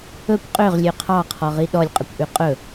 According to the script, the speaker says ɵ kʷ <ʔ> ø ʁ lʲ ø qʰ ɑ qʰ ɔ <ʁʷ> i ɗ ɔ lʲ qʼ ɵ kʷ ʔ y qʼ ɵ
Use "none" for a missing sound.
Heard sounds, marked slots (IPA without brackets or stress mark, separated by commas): qʼ, ʁ